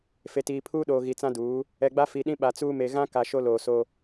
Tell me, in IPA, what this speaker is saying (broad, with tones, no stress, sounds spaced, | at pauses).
f e˨ t iː˨ pʰ uː˦ ɗ oː˨ ɣ i˨ t͡s ã˦ d uː˨˦ | ɛ˨ ɡ͡b a˦ f i˨ ɗ ĩ˦ ɓ a˨ t͡s uː˦ m e˨ ɣ ã˦ k a˨ ʃ o˦ l oː˨ s o˦